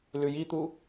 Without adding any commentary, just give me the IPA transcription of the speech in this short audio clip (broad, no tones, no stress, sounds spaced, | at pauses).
l ʉ j i t̪ u